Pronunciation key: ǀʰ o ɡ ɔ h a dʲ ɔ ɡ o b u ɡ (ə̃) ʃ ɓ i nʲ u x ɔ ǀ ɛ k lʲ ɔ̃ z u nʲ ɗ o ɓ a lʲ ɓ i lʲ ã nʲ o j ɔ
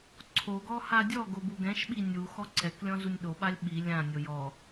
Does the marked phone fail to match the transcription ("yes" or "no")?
yes